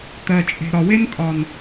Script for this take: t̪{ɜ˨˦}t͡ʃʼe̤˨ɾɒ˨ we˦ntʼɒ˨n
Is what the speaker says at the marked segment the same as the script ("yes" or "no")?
no